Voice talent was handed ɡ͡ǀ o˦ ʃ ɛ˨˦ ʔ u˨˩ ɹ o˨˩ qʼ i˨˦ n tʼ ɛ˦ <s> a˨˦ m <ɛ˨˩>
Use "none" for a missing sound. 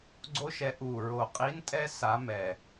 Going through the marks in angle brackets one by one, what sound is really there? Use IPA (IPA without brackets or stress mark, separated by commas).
s, ɛ˨˩